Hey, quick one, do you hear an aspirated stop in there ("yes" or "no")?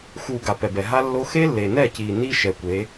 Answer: no